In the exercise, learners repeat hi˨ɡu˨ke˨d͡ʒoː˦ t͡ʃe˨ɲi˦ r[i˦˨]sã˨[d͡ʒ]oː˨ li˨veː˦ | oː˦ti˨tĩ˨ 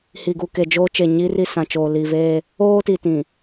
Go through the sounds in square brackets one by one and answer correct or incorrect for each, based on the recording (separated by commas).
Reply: correct, incorrect